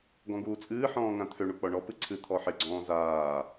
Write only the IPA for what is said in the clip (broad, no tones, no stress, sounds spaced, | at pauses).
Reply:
ɡ ɔ̃ ɡ uː t͡sʼ ɨː ħ ɔ̃ː ŋ ã t̪ʰ ø ɳ u k͡p ɔ ɳ ɔ p ɨ ǀʰ ɨ t̪ʰ ɔ ħ ɪ ɡ͡ǀ ɔ̃ː z aː